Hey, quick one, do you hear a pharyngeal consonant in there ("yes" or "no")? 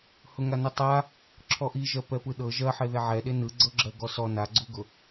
yes